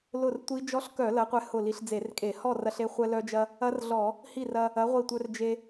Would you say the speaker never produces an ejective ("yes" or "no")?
no